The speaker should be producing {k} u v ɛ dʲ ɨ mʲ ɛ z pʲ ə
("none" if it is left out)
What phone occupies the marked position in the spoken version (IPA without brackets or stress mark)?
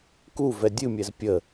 k